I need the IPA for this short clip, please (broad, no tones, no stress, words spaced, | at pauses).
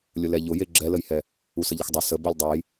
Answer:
lʲʊlɛʎʊje ɡ͡ǁɛləjhɛ | usəʎəxdˤʊ sə bolʲdˤɛj